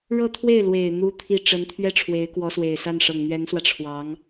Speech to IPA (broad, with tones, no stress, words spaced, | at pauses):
ɻɤ˥˧t̪ʰwe˥˩ɪ̯lwe˨˩ɪ̯ n̪u˥t̪ʰi˥˩ ʈ͡ʂə˧˥nt̪ʰɥɛ˥ ʈ͡ʂʰwe˧˥ɪ̯kwɔ˧˥swe˨˩ɪ̯sa˥˩n ʂɤ˨˩ŋn̪ɥɛ˧˥nswä˧ʈ͡ʂʰwɑ˧˥ŋ